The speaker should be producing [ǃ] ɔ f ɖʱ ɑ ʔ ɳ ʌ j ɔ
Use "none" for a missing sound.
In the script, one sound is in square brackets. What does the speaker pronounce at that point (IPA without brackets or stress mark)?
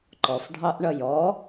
ǃ